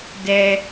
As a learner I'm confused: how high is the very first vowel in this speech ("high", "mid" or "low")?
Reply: mid